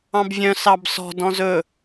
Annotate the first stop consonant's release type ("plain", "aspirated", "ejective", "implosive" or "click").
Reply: plain